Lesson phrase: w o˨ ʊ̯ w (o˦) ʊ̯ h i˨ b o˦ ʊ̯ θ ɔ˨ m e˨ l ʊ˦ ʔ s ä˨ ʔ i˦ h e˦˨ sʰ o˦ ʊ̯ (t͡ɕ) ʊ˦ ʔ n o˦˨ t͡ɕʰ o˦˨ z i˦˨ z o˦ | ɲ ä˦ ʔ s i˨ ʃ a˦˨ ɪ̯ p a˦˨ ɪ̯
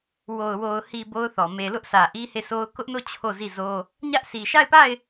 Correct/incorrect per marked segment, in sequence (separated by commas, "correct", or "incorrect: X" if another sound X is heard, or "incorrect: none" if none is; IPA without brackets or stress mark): incorrect: o˨, incorrect: k